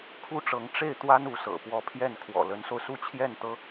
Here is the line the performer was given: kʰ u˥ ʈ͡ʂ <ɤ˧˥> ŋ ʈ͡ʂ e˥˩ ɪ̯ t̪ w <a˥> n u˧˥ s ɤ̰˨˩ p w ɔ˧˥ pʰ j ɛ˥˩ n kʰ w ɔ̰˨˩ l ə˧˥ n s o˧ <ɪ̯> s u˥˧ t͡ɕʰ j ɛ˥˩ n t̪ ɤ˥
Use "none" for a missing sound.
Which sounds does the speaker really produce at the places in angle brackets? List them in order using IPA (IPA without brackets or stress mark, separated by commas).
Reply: ɤ˧˥, a˥, ʊ̯